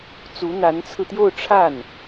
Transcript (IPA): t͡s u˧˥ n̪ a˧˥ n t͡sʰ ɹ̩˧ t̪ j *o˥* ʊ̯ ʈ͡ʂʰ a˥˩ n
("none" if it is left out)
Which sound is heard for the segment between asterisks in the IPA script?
o˥˧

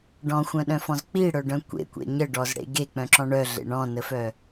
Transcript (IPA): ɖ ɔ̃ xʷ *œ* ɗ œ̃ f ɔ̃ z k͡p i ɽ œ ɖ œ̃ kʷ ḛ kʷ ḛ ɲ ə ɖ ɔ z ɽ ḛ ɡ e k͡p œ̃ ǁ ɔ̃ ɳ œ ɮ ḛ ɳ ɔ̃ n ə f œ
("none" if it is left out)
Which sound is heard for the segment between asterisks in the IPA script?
œ̃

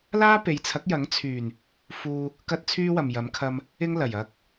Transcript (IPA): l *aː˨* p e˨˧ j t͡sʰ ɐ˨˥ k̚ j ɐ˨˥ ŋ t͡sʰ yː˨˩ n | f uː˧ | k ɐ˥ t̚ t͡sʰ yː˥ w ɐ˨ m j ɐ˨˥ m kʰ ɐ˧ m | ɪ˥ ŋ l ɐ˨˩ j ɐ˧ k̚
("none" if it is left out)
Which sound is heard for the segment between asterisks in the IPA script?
aː˥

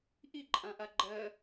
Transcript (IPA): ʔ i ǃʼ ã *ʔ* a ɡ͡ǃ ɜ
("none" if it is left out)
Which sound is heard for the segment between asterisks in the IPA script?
ʔ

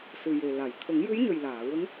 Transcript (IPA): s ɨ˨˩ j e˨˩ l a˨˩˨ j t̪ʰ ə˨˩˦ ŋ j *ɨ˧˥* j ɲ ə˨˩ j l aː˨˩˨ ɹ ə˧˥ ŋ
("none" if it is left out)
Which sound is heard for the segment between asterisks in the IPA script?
ɨ˧˥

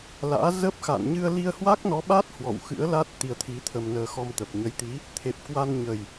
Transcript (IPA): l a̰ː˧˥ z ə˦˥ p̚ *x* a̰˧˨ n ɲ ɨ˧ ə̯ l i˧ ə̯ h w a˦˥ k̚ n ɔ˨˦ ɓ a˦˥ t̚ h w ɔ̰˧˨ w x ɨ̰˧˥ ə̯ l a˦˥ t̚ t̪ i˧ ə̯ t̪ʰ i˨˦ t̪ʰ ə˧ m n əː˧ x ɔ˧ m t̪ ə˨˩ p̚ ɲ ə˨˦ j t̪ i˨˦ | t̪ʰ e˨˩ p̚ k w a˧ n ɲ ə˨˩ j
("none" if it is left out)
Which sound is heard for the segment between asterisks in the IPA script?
x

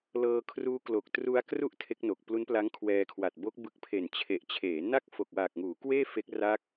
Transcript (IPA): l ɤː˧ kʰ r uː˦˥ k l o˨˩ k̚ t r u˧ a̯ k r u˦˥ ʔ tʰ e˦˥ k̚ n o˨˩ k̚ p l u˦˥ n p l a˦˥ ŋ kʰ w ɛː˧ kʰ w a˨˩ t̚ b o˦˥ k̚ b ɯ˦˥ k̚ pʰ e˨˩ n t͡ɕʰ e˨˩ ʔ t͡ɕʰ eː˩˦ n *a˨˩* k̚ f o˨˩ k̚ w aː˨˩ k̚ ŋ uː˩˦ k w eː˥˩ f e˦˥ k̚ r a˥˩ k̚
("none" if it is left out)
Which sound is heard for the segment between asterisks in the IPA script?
a˥˩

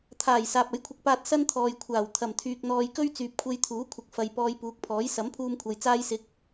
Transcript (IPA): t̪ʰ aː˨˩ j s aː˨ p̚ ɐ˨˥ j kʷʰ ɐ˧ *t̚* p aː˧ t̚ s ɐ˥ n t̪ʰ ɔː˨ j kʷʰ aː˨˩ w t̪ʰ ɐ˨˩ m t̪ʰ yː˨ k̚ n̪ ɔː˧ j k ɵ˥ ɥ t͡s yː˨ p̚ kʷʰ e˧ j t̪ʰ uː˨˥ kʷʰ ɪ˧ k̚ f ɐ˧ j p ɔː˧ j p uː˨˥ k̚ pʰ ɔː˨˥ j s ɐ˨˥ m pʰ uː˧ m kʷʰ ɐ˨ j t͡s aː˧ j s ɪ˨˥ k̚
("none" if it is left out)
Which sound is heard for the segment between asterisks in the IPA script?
k̚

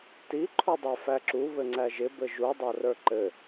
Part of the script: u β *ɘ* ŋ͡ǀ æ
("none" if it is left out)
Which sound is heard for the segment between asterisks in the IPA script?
ɘ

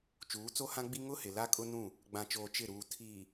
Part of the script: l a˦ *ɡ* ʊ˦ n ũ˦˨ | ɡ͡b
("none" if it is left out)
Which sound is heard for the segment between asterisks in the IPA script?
kʼ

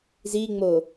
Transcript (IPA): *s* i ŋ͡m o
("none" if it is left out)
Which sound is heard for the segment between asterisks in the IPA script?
z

